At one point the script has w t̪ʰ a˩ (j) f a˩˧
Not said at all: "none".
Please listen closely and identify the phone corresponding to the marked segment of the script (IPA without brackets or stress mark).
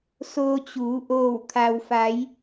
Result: w